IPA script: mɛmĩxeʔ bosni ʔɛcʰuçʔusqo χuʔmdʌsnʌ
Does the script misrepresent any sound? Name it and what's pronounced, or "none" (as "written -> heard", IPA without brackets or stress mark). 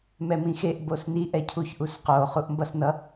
d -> b